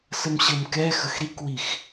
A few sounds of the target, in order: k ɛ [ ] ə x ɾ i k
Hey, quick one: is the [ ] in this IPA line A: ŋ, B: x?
B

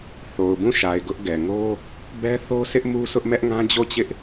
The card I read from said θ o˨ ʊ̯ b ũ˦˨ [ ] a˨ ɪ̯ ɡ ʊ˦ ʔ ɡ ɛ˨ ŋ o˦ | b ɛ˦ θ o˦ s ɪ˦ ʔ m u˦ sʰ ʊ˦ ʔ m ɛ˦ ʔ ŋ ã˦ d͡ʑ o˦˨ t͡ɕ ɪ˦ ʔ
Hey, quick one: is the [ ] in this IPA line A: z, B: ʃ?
B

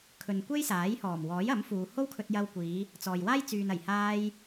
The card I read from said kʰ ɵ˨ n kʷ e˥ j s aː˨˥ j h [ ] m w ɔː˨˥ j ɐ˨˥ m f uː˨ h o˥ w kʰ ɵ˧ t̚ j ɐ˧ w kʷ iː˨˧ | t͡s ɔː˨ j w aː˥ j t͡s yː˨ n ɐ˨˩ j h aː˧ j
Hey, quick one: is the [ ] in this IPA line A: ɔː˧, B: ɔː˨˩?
B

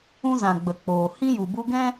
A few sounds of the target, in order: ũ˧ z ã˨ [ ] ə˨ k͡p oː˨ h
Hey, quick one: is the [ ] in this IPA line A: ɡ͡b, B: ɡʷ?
A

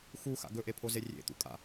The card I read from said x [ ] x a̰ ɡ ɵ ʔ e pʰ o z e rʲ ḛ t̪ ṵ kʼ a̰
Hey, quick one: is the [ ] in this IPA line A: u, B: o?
A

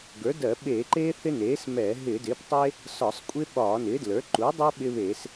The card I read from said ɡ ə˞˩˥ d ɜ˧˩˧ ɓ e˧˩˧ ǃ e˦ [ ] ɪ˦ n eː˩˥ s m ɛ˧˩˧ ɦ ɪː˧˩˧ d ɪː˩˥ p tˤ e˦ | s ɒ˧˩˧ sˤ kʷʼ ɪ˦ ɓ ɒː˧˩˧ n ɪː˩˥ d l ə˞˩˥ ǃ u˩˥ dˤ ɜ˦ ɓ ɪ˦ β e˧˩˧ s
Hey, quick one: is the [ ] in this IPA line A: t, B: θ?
B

